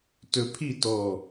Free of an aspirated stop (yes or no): no